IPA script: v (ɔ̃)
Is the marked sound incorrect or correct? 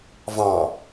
incorrect: ɑ̃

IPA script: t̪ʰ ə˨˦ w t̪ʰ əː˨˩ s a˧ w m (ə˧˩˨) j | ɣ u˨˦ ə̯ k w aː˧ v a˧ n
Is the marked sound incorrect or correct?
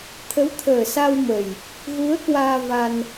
incorrect: ə˨˩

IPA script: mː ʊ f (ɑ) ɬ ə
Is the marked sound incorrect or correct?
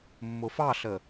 correct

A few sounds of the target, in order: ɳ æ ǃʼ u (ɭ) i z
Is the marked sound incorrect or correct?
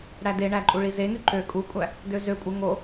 correct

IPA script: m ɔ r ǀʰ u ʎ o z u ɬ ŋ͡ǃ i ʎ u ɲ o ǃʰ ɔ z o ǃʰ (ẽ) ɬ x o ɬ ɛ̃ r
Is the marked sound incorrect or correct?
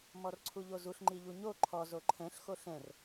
incorrect: ɛ̃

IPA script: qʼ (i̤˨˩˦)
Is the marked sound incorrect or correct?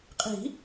correct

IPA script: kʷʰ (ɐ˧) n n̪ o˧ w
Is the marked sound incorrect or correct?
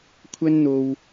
incorrect: ɐ˥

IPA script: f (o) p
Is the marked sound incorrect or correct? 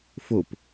correct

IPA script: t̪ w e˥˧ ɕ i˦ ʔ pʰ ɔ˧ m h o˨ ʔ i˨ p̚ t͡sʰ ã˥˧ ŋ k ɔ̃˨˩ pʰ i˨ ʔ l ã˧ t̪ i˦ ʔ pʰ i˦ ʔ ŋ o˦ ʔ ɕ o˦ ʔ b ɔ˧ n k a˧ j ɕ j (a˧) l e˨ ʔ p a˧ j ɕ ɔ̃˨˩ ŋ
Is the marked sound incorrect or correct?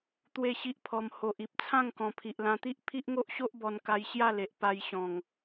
incorrect: a˥˧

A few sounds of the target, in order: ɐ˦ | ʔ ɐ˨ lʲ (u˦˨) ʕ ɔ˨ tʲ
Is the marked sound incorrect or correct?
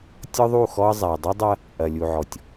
incorrect: u˨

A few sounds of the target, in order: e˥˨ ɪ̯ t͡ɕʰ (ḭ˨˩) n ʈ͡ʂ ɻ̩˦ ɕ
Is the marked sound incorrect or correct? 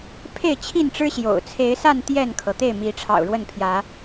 incorrect: i˥˨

